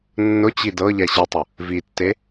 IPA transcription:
nː ʊ t͡ɕ i d ɤ ʎ ɛ ɕ i tˤ ʊ | v i tː e

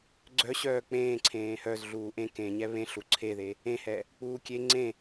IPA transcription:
ɡ͡ǀ œ ɕ œː k͡p ẽː ǀʰ ẽː h œ z ɮ uː ʔ ẽ k ẽ ɲ ɛ β ẽ ɬ u ǀʰ e ð e | ẽ h ɛ | k͡p uː kʲ e ŋ͡ǀ ẽ

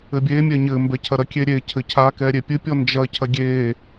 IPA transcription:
ɘ bʲ e mʲ ɛ ɲ ɘ m b ɛ cʰ ɐ ɾ ɐ kʲ e ɾʲ e cʰ ɘ cʰ a k ɛ ɾʲ e pʲ ɨ pʲ ɔ n d͡ʒ ɐ cʰ ɐ ɡʲ e

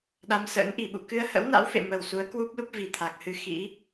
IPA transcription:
ɗ a˧ m s ə̰ː˧˥ n ʔ i˧˩ ɓ ṵ˧˨ k ɨ˧ ə̯ h ə̰˧˥ w n a̰˧˥ w f ḛ˧˨ m ə˨˩ w s u˨˦ ə̯ k w u˦˥ p̚ l u˦˥ p̚ v i˨˩ t̪ʰ a˨˩ k̚ h ɨ˧ x ḭ˧˥

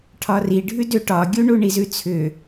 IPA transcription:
ʈʰ ɒ r i ɖʱ ʉ d ʏ ʈ ɒ ɡʲ u ɳ u ɳ i z ʉ t͡sʰ ʏ

